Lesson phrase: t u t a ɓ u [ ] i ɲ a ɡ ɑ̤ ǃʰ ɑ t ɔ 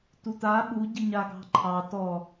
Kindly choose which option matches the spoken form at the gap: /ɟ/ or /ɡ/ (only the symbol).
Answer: ɟ